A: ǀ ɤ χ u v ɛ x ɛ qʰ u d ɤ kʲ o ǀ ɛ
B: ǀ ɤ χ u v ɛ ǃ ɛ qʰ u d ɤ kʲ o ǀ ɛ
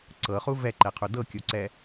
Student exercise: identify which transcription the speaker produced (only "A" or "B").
B